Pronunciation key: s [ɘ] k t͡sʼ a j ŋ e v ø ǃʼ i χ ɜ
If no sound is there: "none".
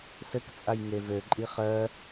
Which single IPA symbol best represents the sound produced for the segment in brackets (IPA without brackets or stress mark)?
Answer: ɘ